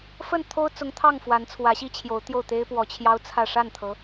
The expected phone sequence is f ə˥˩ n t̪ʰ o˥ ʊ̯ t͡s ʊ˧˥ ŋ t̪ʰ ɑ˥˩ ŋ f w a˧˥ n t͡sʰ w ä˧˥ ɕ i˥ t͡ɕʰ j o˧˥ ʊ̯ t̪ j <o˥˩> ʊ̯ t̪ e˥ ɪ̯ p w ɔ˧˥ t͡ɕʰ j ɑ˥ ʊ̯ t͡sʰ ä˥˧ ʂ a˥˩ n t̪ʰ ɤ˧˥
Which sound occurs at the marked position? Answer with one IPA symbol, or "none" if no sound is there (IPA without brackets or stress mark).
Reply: o˥˩